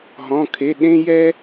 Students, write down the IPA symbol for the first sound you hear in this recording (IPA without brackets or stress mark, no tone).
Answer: ɦ